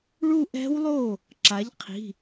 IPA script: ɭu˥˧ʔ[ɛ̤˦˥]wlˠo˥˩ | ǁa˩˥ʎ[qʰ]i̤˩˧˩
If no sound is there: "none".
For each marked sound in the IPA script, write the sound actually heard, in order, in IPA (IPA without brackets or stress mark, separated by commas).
ɛ̤˦˥, qʰ